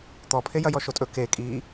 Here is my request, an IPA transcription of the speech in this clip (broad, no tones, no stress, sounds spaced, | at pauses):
t̪ ɔ pʰ e j ɐ j ɔ ʃ o tʼ ɵ k e kʼ i